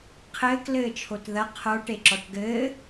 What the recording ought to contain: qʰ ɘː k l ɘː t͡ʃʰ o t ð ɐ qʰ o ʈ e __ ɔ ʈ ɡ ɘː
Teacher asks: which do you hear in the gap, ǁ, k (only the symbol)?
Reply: ǁ